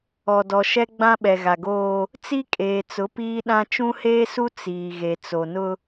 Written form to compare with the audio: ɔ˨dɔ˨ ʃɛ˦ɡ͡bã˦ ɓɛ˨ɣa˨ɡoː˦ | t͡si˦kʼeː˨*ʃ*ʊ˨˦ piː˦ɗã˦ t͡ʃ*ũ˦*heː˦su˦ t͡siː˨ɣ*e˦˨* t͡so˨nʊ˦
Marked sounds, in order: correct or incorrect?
incorrect, correct, incorrect

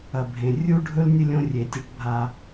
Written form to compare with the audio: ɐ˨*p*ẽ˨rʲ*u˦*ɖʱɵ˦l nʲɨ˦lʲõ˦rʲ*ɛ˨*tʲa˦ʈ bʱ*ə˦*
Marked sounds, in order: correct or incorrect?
incorrect, correct, incorrect, incorrect

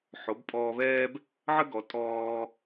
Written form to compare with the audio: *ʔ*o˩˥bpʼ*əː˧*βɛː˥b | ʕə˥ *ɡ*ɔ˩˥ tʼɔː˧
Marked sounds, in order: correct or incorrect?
incorrect, incorrect, correct

